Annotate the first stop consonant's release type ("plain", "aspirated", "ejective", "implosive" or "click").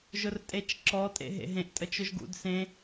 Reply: ejective